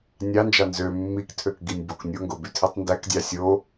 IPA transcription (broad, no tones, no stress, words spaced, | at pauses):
nʲɑnd͡ʒɑ nzø mːiktʰøk ɡinʲboknʲoŋɡo bytʰitˤndækdʲɑ sʲo